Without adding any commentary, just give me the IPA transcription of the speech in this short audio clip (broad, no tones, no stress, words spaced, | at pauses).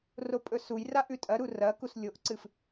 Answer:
ropʼɵsujra ʔʉtʼɐɾu rɐ kuslʲoʔǀɨf